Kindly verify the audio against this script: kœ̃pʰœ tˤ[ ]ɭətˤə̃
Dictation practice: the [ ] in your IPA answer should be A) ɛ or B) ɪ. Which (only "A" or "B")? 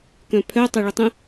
A